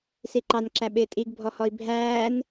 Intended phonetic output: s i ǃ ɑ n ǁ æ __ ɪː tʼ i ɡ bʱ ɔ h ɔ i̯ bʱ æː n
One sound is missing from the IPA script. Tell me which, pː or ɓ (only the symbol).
ɓ